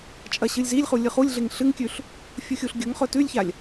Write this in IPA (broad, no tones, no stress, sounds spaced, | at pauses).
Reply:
t͡ʃʼ ɐ ɕ ɨ lʲ z i lʲ χ u lʲ ɨ χ u lʲ ɮ e ŋ ɬ ɨ ŋ kʲ ʉ ɬ | fʲ u xʲ u ɬ ɡʲ ɵ ŋ χ ɵ t ʉ lʲ ç a lʲ